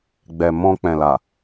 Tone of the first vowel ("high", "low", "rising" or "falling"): low